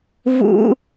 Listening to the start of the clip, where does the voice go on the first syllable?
low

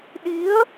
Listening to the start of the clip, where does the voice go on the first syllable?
rising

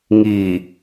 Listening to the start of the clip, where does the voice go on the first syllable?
low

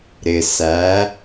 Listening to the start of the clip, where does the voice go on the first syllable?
low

